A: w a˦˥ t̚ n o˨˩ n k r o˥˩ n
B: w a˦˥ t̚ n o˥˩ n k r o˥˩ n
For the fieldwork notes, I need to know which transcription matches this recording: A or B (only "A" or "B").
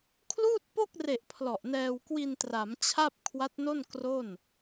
B